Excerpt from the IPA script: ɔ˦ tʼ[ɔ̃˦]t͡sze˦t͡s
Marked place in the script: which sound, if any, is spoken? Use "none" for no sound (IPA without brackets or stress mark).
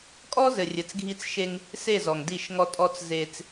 ɔ˦